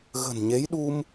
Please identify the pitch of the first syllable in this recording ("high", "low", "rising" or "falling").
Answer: low